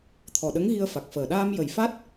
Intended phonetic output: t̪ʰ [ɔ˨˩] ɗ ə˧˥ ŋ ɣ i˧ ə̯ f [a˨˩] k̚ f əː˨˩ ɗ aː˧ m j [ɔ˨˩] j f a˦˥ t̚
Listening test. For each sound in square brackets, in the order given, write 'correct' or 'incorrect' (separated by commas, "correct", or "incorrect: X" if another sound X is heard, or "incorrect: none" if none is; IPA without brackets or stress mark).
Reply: correct, correct, incorrect: ə˨˩